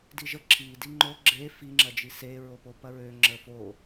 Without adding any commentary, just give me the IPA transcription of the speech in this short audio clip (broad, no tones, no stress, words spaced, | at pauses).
diʒə ǁi diŋ͡ǃo ɡ͡ǁe fi ŋ͡ǁɐd͡ʒise ɹopopɐɹø ŋ͡ǁəfo